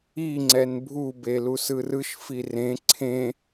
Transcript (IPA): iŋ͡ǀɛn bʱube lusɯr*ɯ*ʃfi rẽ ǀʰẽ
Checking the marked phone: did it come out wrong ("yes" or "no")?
no